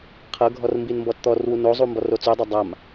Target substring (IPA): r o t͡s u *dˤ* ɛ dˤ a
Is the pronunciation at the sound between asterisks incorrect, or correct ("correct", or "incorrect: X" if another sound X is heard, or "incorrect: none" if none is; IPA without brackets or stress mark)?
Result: correct